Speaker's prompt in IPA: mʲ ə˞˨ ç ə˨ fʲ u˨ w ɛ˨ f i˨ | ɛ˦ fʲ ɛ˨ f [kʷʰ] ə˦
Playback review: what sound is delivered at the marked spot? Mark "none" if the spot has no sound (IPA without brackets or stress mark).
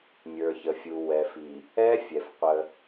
qʷ